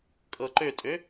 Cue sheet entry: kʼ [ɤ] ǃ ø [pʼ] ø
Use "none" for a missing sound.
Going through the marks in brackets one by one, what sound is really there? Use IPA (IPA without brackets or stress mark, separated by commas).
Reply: ɤ, tʼ